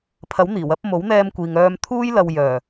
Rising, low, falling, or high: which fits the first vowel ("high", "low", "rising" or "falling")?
rising